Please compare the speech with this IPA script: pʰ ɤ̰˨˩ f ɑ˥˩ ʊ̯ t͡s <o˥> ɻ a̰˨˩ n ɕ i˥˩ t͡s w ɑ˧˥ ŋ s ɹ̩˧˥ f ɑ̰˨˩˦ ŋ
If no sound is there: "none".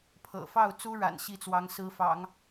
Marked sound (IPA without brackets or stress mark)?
u˥